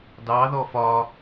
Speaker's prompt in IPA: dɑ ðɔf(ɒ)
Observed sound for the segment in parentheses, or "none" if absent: ɒ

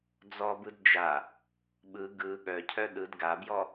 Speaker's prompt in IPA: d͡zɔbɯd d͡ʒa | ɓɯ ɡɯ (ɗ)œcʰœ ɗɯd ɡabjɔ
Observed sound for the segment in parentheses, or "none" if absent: ɠ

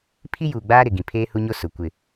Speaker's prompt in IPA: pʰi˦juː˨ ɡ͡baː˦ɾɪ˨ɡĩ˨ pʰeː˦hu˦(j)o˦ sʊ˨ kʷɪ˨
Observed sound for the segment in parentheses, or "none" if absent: ɲ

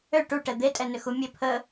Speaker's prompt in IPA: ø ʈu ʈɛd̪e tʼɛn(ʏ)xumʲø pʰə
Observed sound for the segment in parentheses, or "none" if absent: ʏ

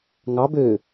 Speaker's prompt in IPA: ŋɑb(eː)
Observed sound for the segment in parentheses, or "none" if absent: øː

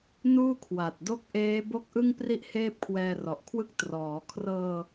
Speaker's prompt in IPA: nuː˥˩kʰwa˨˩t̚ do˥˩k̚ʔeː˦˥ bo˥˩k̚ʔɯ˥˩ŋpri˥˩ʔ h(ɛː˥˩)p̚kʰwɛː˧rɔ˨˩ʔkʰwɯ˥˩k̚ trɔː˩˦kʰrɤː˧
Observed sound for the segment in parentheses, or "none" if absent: eː˥˩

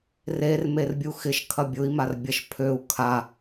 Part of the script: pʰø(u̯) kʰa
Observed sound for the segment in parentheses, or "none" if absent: u̯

